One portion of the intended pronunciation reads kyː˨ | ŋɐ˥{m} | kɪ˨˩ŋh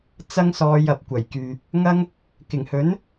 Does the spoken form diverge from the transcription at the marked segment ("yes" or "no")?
yes